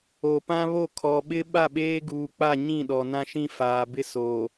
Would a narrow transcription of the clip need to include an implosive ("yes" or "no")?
yes